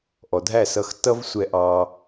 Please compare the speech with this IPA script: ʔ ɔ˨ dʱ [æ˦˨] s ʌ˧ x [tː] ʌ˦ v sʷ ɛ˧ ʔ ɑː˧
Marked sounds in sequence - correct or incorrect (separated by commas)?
correct, correct